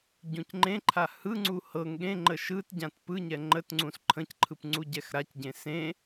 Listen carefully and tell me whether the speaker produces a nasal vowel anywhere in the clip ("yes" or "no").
yes